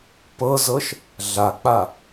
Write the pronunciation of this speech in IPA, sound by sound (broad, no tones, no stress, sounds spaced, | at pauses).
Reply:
p ɤ z ɤ ʃ | ɮ a k͡p a